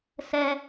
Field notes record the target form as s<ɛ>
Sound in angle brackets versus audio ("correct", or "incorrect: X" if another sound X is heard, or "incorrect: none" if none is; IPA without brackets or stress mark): correct